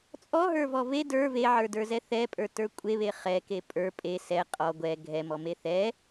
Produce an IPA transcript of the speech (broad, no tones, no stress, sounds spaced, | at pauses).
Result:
t͡sʼ ɔ ɦ ə˞ v ɔ v e d ə˞ v e ʕ ə˞ d ə˞ z ɛ θ ɛ pʼ ə˞ t ə˞ kʷʼ e β e χ ɛ k e pʼ ə˞ pʼ e s ɛ qʼ ɔ ɡʷ ɛ ɡʱ ɛ m ɔ m e θ ɛ